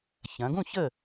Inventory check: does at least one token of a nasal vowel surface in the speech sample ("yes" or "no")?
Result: yes